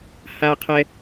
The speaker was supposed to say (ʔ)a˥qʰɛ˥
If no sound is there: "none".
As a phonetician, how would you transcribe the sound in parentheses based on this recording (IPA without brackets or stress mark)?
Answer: h